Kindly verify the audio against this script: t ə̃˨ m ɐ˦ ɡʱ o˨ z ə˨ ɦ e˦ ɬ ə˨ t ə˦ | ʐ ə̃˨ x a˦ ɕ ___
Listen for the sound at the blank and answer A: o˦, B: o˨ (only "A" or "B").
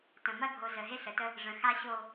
A